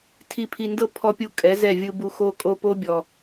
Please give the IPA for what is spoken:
tʰ i˨ pʰ i˨ n d ɤ˧ pʰ ɔ˨ pʲ u˨ kʼ ɛ˨˦ z ɛ˦˨ vʲ ɯ˧ b u˧ x o˧ kʼ o˧ p o˦ bʲ ɔ˨

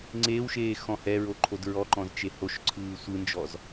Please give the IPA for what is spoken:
ŋ͡ǀ eː w ʃ eː x ɔ̃ h ɛ ɹ o ǃʰ o d ɹ ɔ ǃ ɔ̃ z t͡ʃ e h o ʃ ǀʰ ɯː sʷ ɯ n d͡ʒ ɔ z

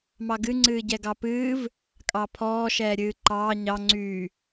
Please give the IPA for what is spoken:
m ɑ ɡ ɨ ŋ͡ǀ ɨː ɟ ɛ ɡ ɑ p ɨː v | kʼ ɑ pʰ ɔː ʃ ɛː ɾʲ ɨː ǃ ɑː ɲ ɑ ŋ͡ǀ yː

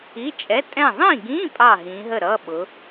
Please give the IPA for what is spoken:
i˧˥˧ t͡ʃʼ ɛ˧˥˧ tʼ ɛ̃˥˨ ðˤ ĩ˥˨ ɡ ĩ˧˥˧ pʼ ɑ˥˨ ɦ ĩ˨˦ ɦ ə˥˨ ɾ ʌ˧˥˧ ɓ ʊ˨˦

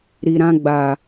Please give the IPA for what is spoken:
ɾ i˨ ɾ ã˧ ɡ͡b a˨

